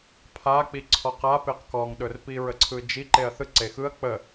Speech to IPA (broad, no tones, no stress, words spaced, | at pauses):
pʰak͡piǀʰɔq a peqkɔŋɗɵrpi ɹəǀʰɯd͡ʒi ǃeɐ̯θɯ ǀexɯɐ̯ k͡pə